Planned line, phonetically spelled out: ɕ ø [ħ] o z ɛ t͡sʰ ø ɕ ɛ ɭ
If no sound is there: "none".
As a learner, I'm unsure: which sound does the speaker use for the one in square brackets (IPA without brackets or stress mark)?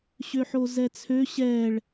ħ